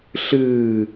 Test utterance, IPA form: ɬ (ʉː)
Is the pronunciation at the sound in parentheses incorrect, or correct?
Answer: incorrect: ɨː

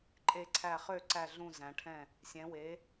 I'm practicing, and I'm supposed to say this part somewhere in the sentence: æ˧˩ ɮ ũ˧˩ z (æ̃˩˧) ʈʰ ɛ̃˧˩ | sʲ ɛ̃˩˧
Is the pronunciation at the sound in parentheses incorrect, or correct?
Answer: correct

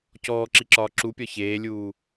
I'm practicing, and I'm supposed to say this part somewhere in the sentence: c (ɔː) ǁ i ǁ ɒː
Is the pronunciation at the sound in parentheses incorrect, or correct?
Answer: correct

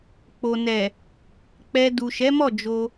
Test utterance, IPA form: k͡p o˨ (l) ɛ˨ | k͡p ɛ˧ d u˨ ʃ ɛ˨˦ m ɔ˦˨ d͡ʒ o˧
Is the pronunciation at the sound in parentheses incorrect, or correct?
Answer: incorrect: n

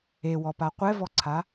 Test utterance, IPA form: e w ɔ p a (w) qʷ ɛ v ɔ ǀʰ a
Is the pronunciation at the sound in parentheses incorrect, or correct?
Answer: incorrect: none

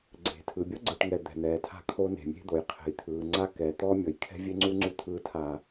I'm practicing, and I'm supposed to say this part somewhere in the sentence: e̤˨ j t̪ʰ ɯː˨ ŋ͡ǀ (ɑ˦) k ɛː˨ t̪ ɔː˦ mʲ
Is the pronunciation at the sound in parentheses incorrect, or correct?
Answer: incorrect: a˦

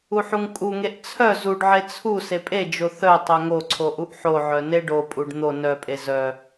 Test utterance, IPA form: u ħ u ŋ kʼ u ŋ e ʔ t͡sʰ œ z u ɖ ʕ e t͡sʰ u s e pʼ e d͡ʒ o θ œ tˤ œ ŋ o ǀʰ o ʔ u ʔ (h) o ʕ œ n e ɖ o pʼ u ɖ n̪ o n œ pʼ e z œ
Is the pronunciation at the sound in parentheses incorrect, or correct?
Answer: incorrect: ħ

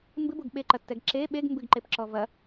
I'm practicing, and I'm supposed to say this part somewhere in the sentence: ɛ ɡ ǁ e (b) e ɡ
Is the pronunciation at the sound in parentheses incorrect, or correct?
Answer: incorrect: ɓ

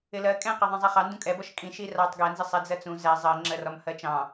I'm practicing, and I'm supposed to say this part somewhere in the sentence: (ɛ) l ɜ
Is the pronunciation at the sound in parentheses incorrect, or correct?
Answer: incorrect: ɪ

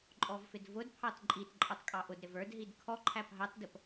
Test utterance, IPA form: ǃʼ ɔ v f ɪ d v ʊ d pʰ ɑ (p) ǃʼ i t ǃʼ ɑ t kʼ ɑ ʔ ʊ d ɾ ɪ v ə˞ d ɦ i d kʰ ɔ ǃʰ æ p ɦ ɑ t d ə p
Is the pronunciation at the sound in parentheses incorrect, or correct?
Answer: incorrect: t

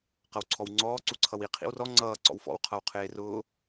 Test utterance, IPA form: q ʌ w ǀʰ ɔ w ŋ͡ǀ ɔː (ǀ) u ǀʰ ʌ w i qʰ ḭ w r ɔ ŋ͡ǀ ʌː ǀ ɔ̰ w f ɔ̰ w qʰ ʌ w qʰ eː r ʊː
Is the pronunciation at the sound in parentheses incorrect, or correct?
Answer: correct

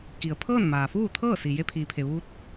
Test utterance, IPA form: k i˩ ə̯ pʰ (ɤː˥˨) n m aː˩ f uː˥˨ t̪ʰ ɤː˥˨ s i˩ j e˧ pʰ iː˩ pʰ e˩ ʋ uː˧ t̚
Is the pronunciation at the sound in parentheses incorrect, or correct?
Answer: correct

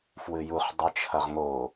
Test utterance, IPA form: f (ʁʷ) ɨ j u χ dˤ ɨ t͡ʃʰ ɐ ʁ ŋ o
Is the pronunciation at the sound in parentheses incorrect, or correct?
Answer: incorrect: w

